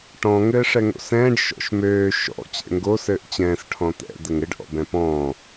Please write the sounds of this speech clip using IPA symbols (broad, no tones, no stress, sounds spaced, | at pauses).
ʈ ɔ̃ ŋ ɘː ʂ ɛ ŋ o̰ s ɛ̃ː ɖ ʃ ɔ̰ ʃ m øː ʃ ɔ̰ t͡ɕ ɛ̰ ŋ ɡ o s ɘː ʔ t͡ɕ ɛ̃ː s ʈʰ ɔ̃ t̪ ɛ̰ d̪ ɘ ŋ ɘ ɖ ʔ ɔ̰ b ɛ̃ p ɔ̃ː